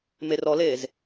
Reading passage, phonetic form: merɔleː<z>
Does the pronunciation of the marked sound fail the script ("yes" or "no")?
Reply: no